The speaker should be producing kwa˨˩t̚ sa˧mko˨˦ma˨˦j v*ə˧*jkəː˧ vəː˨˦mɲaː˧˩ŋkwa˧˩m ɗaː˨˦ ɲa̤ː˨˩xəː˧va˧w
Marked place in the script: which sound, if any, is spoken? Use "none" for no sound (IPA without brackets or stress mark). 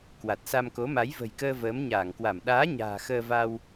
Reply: ə̤˨˩